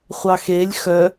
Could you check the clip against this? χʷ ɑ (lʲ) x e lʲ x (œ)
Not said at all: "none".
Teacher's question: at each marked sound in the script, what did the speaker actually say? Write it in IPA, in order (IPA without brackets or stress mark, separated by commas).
none, œ